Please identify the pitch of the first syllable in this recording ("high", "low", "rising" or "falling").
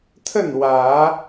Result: falling